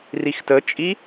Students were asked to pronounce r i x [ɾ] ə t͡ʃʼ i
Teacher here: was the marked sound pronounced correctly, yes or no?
no